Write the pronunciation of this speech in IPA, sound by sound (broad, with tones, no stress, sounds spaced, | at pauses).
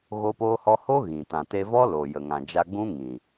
ɣ o˦ p oː˦ h ɔ˦ h o˦ ɣ ĩ˨ t ã˨ t e˧ v ɔ˦ l o˨ j ə˨ ŋ ã˨ d͡ʒ a˧ ɡ͡b ũ˦ ŋ ĩ˨